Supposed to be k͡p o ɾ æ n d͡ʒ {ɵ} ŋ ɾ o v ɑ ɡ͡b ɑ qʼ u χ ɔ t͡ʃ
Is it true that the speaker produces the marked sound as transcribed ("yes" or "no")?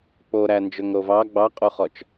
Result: yes